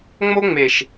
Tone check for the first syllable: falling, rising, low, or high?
high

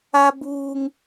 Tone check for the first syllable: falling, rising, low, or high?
high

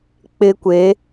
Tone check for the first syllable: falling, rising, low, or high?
high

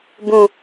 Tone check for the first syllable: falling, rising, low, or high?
low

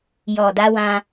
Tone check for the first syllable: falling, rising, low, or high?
low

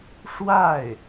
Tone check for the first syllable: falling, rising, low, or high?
falling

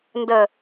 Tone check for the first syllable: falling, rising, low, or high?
low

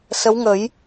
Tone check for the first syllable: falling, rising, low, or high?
rising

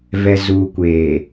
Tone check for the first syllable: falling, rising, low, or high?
low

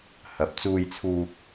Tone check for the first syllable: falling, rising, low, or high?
low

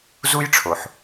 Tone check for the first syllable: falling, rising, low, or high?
high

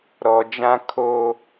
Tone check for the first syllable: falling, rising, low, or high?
low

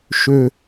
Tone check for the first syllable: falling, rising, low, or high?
low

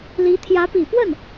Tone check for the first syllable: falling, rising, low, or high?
rising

